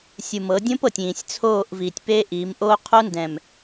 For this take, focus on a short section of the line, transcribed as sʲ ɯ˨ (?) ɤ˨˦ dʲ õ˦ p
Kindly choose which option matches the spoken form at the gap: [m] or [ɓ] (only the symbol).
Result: m